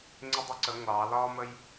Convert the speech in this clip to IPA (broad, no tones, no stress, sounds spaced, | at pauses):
ŋ͡ǀ ɪ dˤ ɪ ǀ ə ŋʷ ɑ l ɒ m ə j